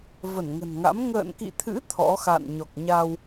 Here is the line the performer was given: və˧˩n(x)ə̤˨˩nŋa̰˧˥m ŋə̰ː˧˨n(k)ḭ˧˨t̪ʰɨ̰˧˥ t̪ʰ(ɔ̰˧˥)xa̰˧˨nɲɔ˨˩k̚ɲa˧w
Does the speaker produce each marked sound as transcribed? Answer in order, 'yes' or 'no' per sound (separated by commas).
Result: no, yes, yes